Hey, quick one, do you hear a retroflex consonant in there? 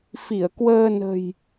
no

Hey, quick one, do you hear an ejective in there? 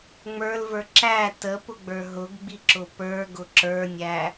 no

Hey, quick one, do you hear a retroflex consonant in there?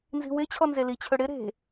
yes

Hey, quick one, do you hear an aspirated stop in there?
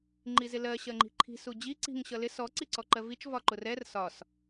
yes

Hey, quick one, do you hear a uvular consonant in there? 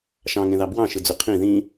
yes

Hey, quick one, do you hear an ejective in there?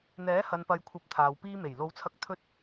no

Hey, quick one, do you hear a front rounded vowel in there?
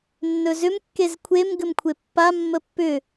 yes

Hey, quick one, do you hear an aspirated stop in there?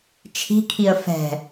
yes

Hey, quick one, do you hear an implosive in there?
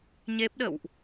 yes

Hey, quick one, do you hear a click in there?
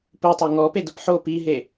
no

